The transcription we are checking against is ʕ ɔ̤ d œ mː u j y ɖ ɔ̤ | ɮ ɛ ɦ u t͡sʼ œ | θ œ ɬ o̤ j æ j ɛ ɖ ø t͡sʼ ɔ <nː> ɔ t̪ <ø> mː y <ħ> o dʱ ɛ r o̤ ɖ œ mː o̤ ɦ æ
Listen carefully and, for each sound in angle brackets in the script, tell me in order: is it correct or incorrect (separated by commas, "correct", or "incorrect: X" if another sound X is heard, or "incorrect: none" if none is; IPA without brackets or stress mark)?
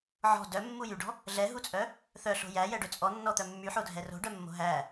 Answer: correct, incorrect: œ, correct